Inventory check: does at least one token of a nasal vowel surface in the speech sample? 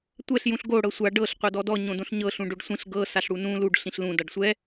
yes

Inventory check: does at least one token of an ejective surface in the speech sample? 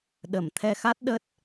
no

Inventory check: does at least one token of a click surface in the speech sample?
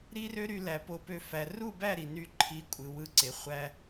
yes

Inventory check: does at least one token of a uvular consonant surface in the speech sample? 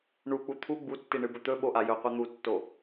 yes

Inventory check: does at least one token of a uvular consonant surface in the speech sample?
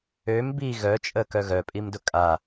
no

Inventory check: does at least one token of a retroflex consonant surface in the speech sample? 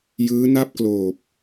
no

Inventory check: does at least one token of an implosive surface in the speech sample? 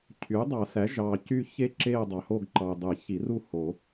no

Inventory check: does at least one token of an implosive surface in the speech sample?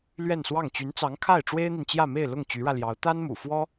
no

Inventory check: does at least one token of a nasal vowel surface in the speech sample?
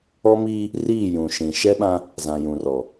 yes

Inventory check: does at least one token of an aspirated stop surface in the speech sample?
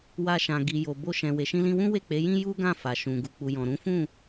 no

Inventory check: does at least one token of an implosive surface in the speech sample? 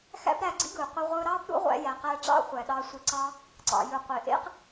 yes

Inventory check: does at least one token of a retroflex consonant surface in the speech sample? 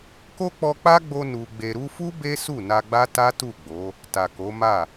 no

